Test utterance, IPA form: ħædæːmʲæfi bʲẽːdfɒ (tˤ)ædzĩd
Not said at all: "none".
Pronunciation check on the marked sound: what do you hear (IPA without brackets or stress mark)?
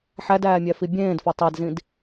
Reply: tˤ